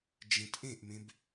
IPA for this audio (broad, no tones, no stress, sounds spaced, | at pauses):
d͡ʒ ẽ t ʔ ẽ ʔ m ẽ b